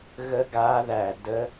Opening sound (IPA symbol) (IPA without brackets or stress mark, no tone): ɣ